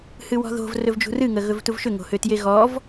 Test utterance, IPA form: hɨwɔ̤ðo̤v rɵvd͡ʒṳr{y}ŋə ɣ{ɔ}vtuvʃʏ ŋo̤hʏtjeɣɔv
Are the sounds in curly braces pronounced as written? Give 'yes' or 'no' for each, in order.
no, no

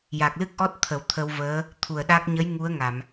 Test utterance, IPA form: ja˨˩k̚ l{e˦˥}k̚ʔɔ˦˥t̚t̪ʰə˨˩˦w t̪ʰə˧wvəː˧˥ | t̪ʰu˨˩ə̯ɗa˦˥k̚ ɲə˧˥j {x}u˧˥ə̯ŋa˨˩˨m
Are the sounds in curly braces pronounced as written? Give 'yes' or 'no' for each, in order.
no, no

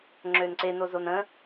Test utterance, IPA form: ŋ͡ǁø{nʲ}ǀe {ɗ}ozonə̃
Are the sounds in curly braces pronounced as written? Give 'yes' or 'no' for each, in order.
no, no

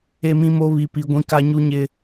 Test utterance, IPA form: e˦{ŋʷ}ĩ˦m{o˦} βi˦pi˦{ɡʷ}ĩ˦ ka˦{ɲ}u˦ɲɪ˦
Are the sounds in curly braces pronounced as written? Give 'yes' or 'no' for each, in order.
no, yes, yes, yes

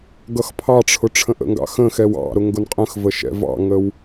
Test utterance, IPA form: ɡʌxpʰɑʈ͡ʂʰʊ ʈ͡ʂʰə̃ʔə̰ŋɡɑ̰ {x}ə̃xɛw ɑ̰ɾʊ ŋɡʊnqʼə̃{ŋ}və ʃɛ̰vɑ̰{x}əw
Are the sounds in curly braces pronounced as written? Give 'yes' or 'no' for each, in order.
yes, no, no

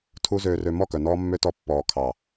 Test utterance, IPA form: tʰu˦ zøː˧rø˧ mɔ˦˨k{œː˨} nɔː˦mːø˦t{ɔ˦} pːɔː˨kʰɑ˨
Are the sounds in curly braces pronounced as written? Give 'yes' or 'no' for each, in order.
no, no

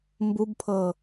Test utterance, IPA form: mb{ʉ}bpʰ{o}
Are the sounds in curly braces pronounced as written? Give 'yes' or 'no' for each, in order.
no, no

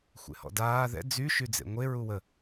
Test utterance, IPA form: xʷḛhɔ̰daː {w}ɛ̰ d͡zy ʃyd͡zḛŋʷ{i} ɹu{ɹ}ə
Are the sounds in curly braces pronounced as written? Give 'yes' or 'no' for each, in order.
no, no, no

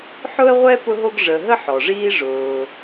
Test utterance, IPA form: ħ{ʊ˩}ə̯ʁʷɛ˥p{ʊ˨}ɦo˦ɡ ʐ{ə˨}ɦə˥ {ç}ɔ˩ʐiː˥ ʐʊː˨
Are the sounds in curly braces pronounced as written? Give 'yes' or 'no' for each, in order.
no, no, yes, no

